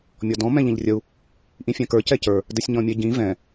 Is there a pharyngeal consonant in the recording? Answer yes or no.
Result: no